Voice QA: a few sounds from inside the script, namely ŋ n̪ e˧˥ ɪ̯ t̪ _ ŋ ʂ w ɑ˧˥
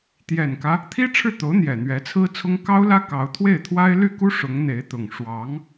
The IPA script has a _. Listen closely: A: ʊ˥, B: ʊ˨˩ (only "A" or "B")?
B